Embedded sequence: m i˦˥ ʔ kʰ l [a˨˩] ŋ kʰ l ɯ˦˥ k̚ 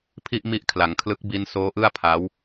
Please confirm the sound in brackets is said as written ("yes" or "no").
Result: no